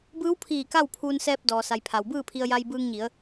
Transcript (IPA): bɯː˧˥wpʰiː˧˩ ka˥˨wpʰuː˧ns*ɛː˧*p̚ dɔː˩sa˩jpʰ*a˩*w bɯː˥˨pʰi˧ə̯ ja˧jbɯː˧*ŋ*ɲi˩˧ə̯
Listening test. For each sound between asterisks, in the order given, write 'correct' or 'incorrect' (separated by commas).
correct, correct, correct